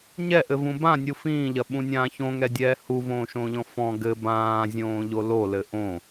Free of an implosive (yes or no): no